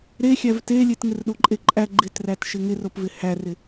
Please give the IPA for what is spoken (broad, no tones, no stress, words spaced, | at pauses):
ɾexʲæv telʲet ŋɪrɗoǃʼeǃʼæ ɡ͡ǃɪtræt ʃɪŋɪropvɪ hærɪ